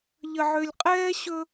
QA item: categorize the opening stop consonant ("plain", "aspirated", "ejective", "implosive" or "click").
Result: ejective